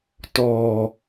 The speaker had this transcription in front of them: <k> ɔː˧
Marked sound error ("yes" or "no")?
yes